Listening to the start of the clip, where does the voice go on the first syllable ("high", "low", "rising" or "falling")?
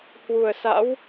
low